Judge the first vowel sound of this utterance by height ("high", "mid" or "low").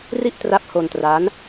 high